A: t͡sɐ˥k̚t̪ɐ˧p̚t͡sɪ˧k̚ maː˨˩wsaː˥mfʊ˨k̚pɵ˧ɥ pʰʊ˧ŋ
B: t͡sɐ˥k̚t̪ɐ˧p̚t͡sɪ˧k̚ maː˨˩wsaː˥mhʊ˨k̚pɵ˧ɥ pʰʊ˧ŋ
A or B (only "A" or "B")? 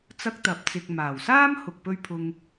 B